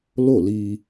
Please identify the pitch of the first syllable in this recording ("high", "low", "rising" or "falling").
falling